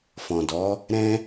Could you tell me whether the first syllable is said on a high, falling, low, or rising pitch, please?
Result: low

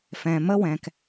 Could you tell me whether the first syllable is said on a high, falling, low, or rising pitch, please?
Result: low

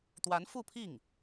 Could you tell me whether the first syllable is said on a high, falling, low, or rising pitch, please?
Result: rising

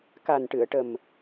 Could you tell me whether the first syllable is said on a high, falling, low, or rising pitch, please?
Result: low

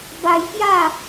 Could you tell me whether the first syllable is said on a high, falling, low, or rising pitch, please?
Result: high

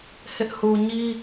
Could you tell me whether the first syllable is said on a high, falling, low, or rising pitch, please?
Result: high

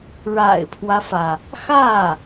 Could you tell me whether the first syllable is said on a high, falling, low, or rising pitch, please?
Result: low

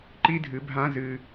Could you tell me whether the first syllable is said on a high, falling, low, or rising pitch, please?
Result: high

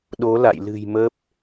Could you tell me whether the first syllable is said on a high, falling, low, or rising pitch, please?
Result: rising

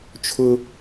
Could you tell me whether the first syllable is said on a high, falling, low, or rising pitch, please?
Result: high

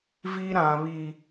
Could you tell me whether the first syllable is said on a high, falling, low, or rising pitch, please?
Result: high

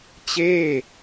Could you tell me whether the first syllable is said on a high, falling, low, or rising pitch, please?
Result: falling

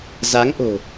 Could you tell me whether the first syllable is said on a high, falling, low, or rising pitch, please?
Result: rising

